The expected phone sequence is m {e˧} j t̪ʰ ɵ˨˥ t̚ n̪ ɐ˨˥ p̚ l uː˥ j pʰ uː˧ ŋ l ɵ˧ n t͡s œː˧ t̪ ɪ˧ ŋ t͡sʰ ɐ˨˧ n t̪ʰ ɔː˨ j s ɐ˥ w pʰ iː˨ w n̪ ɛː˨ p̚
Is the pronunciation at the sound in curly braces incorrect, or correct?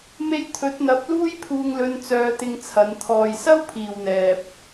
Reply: correct